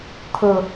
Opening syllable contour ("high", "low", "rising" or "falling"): low